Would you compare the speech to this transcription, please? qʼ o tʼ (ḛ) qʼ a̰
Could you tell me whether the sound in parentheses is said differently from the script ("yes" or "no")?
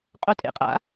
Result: no